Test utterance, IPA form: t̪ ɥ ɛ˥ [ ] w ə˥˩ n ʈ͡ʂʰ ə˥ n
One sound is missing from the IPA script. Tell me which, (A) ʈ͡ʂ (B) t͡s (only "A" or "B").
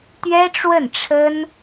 A